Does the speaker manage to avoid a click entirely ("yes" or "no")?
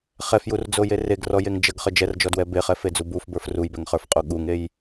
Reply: yes